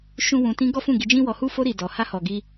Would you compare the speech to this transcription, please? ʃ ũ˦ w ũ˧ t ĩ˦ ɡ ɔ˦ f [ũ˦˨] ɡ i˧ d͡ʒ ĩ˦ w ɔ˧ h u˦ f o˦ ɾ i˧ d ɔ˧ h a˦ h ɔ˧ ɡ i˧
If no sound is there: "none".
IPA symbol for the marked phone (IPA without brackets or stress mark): ũ˦˨